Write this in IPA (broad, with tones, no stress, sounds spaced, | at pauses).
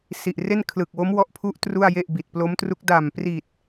s i˨˩ ʔ r e˥˩ n kʰ l ɯː˨˩ k̚ w o˦˥ m w ɔ˦˥ ʔ pʰ u˦˥ ʔ t r u˥˩ a̯ j e˥˩ ʔ b i˨˩ t̚ p l o˦˥ m t r u˦˥ k̚ d a˨˩ m p r i˨˩ t̚